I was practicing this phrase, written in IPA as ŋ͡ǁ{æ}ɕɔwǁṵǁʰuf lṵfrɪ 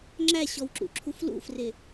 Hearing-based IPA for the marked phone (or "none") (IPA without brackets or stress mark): æ